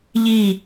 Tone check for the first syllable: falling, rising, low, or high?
falling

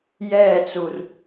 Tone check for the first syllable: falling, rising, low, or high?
falling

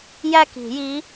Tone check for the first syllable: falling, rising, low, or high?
falling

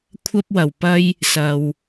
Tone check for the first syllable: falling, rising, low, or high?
high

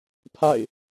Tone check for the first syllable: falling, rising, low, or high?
falling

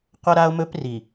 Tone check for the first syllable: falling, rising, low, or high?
high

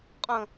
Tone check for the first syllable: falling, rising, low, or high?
high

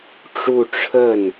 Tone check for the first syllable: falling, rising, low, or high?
falling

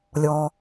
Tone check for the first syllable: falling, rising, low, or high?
low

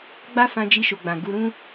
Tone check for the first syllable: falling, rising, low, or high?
high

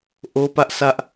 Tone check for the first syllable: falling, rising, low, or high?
high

